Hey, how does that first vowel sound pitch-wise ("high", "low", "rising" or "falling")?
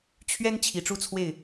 high